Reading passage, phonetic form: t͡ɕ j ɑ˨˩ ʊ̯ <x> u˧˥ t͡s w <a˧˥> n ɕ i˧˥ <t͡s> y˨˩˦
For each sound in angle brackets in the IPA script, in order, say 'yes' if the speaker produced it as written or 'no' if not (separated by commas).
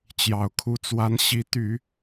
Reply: no, yes, no